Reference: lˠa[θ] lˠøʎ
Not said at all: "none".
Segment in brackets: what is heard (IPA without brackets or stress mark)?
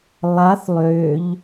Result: θ